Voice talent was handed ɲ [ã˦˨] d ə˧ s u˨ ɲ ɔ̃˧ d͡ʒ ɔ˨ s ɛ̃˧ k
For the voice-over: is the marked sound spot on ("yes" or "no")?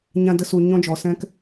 no